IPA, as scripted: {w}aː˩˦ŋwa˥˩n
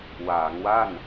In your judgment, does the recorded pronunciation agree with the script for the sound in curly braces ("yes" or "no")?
yes